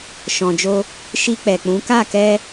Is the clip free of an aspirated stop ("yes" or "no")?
yes